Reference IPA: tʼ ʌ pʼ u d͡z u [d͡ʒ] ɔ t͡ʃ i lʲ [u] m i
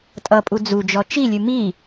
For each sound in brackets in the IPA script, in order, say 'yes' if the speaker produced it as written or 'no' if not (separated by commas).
yes, no